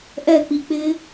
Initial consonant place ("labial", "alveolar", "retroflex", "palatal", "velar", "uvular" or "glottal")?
glottal